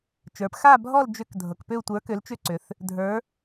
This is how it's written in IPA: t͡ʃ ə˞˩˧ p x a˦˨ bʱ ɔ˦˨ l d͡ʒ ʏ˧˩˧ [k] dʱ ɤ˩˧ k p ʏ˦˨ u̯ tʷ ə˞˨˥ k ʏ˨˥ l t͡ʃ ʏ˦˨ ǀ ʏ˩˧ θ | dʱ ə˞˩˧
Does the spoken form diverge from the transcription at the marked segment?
no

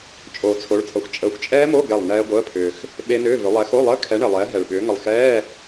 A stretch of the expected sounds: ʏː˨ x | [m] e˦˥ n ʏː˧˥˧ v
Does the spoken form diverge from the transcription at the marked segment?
yes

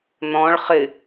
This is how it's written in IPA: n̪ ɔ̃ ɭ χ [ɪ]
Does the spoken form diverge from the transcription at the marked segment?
no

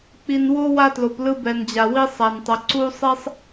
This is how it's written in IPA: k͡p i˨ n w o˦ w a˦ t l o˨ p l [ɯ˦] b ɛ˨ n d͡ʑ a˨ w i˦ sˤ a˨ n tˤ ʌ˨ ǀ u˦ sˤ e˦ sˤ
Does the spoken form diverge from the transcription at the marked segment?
no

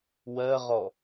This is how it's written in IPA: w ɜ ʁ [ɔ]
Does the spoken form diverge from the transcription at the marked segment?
no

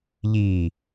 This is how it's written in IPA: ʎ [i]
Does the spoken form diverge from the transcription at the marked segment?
no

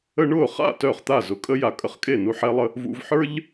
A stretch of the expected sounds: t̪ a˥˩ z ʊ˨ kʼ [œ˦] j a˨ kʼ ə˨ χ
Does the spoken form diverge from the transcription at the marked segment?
yes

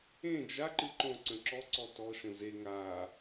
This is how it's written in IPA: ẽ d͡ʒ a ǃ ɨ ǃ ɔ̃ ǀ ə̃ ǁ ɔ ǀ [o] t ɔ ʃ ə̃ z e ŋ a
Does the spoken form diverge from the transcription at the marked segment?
yes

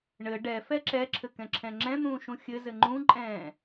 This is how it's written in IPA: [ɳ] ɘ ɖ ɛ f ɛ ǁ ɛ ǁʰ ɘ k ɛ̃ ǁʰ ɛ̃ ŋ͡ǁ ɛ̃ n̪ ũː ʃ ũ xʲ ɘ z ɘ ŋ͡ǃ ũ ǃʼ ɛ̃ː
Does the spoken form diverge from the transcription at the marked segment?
no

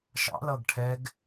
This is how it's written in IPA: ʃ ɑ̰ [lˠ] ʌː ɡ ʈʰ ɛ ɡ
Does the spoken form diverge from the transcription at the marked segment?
yes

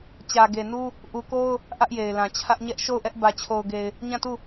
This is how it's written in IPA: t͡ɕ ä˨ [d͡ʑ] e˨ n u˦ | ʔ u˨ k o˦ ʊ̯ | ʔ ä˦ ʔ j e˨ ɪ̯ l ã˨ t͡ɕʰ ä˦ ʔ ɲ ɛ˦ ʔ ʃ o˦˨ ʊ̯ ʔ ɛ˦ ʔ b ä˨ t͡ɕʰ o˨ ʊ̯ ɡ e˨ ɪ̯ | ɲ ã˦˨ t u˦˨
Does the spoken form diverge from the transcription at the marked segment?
yes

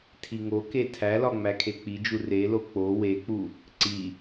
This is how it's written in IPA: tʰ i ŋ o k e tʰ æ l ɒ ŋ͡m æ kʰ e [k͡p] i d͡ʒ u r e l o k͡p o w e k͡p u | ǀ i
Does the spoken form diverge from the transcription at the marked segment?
no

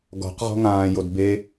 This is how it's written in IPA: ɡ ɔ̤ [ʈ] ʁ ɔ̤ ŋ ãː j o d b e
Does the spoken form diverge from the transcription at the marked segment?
yes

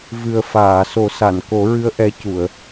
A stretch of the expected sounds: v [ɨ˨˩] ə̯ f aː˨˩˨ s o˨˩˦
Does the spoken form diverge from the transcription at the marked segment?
no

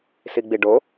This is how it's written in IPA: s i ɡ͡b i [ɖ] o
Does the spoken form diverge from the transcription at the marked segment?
no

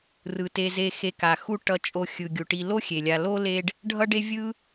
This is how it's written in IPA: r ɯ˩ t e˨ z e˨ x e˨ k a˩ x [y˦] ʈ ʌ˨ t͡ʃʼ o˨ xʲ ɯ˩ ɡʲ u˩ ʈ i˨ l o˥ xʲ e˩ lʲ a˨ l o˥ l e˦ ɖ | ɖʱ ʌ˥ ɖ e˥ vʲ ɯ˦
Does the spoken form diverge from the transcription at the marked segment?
yes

